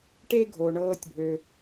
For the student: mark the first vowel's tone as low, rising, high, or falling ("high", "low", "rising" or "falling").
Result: high